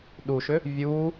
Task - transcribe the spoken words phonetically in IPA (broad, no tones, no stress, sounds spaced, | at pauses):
ɗ u ʃ ʏ | vʲ u